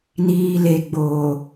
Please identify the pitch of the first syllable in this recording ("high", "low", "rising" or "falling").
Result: low